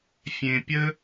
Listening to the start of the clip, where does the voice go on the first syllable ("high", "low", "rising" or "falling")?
low